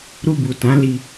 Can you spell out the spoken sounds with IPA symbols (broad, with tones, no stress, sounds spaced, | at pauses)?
ɾ u˧ b u˨ t ã˨˦ l i˧